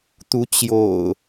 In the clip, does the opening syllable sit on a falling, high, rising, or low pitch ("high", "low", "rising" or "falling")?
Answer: rising